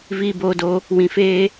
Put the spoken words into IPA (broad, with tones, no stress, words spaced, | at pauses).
viː˧boː˧do˧ | wĩ˧feː˦